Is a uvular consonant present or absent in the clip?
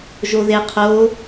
present